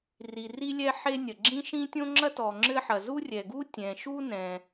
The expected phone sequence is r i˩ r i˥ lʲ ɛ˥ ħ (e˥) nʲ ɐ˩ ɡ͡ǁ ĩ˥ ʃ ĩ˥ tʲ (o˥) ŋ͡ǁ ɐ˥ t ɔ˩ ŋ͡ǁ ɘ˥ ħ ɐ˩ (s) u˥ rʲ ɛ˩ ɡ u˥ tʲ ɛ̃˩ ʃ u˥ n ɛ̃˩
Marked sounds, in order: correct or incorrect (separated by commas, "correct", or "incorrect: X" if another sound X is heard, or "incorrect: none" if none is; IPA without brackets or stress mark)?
correct, incorrect: õ˥, incorrect: z